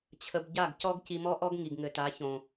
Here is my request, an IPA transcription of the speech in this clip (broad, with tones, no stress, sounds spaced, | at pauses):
t͡ɕʰ ə˧ b ɟ a˦˨ ɡ c ɔ˦ ɡ c i˧ m ɔ˦ ʔ ɔ˦ ɡ ŋ i˨ ɡ ŋ ɘ˨ t a˨˦ ç õ˨